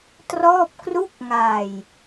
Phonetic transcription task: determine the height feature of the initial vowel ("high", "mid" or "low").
mid